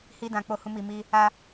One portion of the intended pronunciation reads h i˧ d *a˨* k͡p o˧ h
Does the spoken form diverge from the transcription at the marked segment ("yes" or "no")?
yes